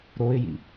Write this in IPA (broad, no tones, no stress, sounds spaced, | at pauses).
ɾ o ɪ̯ j ḭ